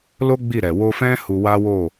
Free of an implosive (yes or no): yes